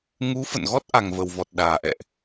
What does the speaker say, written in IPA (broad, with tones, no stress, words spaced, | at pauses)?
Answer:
ŋu˨˦ fə̰˧˨nɣɔ˦˥t̚ ʔa˨˩ŋvə˨˩w vɔ˨˩t̚ɗaː˨˩ʔɛ̰˧˨ʔ